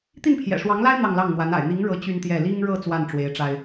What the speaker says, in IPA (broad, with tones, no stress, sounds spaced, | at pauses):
t̪ i˥˩ n pʰ j ɛ̰˨˩ ʂ w ɑ˧˥ ŋ l a˥ ɪ̯ n̪ ɑ˥˧ ŋ l ɑ˥˩ ŋ n̪ w a˧˥ n a̰˨˩ ɪ̯ n̪ i˧˥ ŋ ɻ ɤ˧˥ t͡ɕ y˥ n t̪ j ɛ˥˩ l i˥ ŋ ɻ ɤ˥˧ t͡s w a˥˩ n ʈ͡ʂ w e˧˥ ɪ̯ ʈ͡ʂ a˥ ɪ̯